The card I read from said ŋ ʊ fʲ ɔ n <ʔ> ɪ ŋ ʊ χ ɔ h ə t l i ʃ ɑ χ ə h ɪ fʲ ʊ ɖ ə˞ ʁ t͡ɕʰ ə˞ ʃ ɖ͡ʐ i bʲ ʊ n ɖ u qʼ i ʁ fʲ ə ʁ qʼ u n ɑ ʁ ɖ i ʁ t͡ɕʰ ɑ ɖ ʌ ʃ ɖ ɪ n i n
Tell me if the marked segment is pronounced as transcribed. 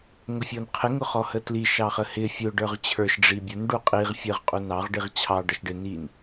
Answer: no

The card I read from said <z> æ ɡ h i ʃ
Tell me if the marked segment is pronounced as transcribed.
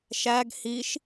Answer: no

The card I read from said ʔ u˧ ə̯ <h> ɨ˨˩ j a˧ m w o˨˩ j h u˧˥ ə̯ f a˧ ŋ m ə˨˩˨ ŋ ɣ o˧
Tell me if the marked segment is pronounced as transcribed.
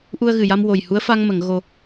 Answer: no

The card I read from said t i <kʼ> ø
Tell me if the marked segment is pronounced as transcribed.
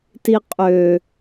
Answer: no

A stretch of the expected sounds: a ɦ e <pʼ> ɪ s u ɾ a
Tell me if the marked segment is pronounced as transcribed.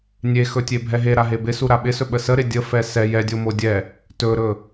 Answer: no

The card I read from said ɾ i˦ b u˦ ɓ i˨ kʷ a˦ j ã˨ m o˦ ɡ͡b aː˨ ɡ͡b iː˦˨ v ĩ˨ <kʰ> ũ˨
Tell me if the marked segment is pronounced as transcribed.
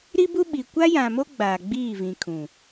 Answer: yes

